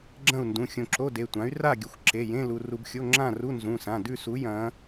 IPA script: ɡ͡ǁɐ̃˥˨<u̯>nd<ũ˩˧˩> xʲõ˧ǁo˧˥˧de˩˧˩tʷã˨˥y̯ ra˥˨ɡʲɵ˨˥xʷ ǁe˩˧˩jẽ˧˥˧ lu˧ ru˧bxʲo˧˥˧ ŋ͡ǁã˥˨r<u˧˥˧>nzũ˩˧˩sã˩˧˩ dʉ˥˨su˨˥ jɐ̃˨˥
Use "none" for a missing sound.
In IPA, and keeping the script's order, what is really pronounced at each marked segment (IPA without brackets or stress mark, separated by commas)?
u̯, ũ˩˧˩, u˧˥˧